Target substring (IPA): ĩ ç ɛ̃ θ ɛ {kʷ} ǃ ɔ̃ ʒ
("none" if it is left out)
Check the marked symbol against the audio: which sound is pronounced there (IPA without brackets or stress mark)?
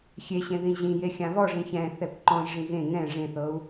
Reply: kʷ